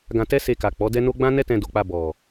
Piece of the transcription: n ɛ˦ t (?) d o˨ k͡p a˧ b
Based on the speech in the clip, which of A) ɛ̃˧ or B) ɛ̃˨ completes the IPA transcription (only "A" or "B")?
A